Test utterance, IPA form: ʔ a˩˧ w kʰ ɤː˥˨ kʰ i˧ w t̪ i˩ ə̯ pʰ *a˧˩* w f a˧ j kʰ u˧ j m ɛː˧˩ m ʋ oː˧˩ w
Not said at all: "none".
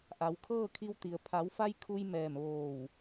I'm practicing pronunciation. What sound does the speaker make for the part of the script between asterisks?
a˩˧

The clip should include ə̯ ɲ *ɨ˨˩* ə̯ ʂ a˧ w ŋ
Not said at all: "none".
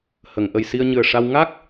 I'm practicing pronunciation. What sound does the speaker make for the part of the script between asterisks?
ɨ˨˩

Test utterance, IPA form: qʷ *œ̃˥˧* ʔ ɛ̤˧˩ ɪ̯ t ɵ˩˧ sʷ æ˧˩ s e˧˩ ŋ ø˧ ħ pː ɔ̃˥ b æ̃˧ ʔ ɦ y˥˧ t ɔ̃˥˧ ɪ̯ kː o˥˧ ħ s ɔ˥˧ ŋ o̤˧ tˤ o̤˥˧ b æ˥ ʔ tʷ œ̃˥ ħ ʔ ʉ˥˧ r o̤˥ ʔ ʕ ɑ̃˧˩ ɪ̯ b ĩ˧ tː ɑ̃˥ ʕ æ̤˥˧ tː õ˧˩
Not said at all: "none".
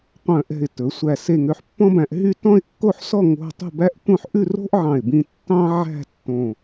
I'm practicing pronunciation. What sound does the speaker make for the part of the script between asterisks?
œ̃˧˩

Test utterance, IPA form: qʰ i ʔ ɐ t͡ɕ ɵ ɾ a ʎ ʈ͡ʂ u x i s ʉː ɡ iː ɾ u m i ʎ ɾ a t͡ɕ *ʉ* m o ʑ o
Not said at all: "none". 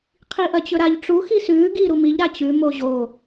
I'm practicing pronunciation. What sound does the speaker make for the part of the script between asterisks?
ʉ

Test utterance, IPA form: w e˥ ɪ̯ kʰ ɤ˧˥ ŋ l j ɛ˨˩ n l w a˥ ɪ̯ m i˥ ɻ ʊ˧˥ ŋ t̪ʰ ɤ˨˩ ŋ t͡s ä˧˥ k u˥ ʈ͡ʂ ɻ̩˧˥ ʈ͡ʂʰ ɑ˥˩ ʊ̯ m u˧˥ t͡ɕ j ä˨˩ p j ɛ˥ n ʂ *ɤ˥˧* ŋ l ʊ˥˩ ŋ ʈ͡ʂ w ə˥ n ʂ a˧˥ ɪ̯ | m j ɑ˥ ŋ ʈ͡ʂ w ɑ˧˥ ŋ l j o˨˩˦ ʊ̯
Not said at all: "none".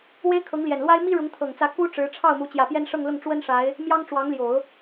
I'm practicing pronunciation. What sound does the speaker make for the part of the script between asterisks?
ɤ˥˧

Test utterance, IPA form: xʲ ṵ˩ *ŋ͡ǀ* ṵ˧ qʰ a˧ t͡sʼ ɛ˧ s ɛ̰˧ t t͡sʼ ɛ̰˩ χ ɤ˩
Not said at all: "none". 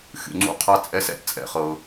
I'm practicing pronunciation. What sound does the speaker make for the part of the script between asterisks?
ŋ͡ǀ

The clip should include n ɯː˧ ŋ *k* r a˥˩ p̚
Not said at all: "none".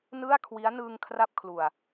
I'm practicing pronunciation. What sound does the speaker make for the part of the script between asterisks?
kʰ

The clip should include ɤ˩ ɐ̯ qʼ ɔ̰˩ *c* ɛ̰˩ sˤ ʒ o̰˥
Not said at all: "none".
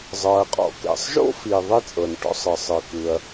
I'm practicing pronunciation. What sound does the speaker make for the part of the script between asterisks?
k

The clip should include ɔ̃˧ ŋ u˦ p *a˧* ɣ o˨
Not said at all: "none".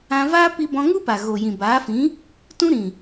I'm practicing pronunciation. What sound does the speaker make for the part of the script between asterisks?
a˨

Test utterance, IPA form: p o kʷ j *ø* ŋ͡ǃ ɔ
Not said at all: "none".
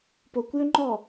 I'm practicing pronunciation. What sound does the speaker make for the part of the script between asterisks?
ø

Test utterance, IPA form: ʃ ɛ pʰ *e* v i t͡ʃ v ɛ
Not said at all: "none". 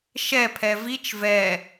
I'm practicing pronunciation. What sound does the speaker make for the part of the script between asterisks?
ɛ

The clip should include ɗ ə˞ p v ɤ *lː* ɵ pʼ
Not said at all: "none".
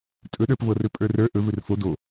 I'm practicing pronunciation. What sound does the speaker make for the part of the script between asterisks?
r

